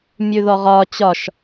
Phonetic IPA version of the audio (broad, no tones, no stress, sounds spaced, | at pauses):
mʲ ʉ ð ɔ ʁ ɒ t͡ɕ ɒ ʃ